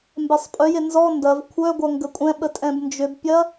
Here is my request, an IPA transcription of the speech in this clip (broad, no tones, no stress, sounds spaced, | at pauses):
m b ɛ sˤ pʼ œ j e n z ɔ n d ɐ v kʷʰ œ ɡʷ ɐ ŋ ɡ ə kʷʼ ɛ̃ ɓ ə tʼ ɛ̃ b n d͡ʒ ʏ b pʲ ɐ